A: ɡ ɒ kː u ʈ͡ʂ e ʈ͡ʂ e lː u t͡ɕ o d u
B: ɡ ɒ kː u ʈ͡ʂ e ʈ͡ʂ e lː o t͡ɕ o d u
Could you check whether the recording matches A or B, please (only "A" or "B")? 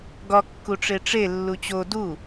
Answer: A